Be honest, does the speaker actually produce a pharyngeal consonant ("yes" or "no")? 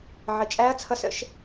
yes